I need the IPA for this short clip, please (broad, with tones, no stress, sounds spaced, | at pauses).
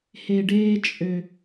h e˨ ɖ eː˧ t͡ʃʼ ø˨